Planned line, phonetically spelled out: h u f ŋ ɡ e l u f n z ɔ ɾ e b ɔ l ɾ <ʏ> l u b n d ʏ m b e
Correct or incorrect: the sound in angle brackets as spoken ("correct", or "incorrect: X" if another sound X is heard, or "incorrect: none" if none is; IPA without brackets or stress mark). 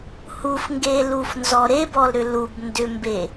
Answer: correct